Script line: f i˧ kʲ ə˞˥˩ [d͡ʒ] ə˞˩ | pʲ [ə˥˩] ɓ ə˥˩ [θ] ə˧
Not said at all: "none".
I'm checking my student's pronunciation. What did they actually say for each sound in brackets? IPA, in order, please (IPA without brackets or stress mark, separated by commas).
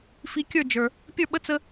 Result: d͡ʒ, ə˞˥˩, t͡s